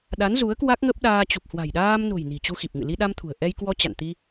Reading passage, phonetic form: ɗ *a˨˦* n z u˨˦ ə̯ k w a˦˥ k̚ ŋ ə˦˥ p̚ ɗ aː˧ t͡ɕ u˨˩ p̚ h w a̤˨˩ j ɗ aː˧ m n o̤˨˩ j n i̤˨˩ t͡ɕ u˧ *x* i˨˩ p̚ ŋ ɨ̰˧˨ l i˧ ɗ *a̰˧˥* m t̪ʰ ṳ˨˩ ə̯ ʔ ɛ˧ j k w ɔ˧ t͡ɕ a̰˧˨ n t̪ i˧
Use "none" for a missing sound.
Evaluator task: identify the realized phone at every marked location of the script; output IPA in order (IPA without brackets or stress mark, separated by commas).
a˨˦, x, a˧